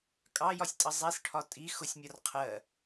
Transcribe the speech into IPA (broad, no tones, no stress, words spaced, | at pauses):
kʼɑjɒsʲtʼʌ zˤisʈʰɒ tʼi xʊsʲmʲɒr qʰɜ